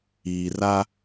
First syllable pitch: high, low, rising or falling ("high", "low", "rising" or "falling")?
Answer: low